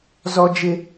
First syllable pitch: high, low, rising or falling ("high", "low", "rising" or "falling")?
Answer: high